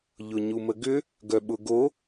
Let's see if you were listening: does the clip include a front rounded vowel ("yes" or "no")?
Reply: yes